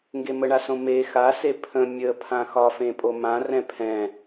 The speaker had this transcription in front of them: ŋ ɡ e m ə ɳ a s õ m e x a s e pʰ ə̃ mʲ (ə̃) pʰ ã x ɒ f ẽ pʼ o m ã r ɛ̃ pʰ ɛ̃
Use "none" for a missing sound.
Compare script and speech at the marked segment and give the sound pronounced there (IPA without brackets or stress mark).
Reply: ə